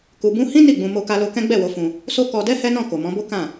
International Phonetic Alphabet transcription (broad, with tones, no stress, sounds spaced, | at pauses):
k u˧ b ũ˦ h ĩ˦ n i˦˨ ɡ͡b ũ˧ m o˧ k a˧ l o˧ k ɛ̃˦ ɡ͡b ɛ˦˨ w o˨˦ f ũ˧ | s o˦ k ɔ˧ d ɛ˦ h ɛ˦ n ɔ̃˦˨ k o˨ m ɔ̃˨˦ b o˦ k ã˦˨